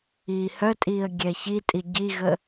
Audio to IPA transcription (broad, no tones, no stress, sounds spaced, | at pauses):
iː h œ tʼ iː ə̯ ɡʲ ɛ ç i tʼ i ɟ i ɣ ə